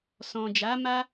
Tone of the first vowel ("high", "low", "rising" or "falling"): low